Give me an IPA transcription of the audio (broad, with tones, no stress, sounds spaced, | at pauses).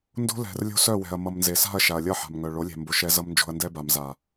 n d o̤˦ l ɛ̤˨ r lʲ o̤˦ s œ˦˨ w ɛ̤˨ ɐ̯ m ʌ˨ m n z e˨ s a̤˦˨ ɐ̯ ʃ a˨ ɐ̯ lʲ ʌ˦˨ ħ a̤˨ m ŋ œ˨ ɭ o˨˦ lʲ ɛ̤˨ m b o˨ ʃ ɛ˦ z ʌ˦ m n d͡ʒ o̤˦ ɐ̯ n d ɛ˦ b a˨ m z a˨